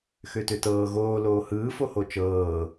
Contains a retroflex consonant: no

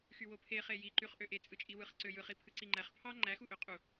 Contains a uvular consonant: yes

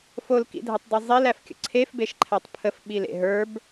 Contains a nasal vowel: no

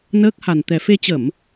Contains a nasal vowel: no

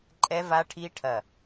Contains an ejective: yes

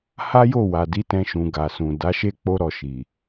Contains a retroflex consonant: no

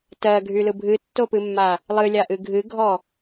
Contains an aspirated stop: no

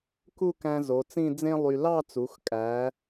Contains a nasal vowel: yes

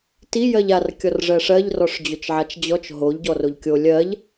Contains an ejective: no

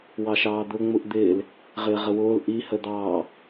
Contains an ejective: no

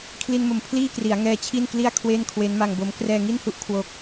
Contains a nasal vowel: no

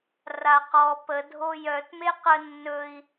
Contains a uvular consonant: yes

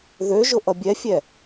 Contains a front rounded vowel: yes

